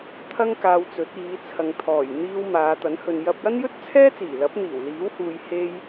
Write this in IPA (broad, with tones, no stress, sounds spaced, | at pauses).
t̪ʰ ɐ˥ ŋ k aː˧ w t͡s ɵ˨˥ t̚ iː˨˧ t͡sʰ ɐ˨ ŋ t̪ʰ ɔː˨˩ j n̪ iː˧ w m aː˨˧ t̪ ɐ˨˥ n h ɵ˨ n j ɐ˧ p̚ j ɐ˥ n j ɵ˥ t̚ t͡sʰ ɛː˥ t͡s iː˨˩ l ɐ˨˥ p̚ n̪ iː˨˩ w l iː˨˥ w h uː˨ j h e˧ j